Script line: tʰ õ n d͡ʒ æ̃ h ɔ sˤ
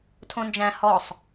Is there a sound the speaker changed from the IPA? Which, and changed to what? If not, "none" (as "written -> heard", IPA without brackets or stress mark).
none